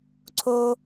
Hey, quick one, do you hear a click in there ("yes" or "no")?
yes